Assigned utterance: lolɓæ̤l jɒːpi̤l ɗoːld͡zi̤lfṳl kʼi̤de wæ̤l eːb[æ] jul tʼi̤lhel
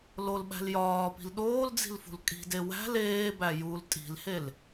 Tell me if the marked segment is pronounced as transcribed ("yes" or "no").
yes